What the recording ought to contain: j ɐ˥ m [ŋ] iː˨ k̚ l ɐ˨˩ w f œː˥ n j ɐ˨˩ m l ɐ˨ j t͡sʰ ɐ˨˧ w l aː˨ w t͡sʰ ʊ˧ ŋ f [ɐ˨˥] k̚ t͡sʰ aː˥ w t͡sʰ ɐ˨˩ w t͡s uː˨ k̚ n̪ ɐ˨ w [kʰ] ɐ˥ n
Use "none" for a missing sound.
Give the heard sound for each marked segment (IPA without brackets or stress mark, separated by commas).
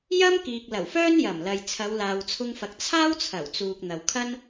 k, ɐ˨, kʰ